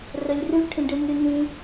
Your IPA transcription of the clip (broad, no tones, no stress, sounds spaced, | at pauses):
r ɵ lʲ r ʉ ʈʰ ĩ ɖ ɨ n ʉ n ĩ